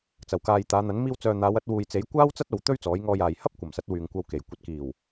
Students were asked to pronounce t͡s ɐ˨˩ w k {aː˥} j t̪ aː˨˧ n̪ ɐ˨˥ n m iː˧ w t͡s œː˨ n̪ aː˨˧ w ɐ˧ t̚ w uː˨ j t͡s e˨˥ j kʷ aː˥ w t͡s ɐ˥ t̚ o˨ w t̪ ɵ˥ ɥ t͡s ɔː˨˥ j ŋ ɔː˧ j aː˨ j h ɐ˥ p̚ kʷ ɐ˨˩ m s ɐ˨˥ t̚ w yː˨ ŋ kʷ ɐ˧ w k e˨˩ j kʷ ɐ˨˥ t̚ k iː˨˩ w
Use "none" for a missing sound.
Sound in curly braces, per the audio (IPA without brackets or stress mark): aː˨